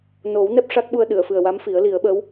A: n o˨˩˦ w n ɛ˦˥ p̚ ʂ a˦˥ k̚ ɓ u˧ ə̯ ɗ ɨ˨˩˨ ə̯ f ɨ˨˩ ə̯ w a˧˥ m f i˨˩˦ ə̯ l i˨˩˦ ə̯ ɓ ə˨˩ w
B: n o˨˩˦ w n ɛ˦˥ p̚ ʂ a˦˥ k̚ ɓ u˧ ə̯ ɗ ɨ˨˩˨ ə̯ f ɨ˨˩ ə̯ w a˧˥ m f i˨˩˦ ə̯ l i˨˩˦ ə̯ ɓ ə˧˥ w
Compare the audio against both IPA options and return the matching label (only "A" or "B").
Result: B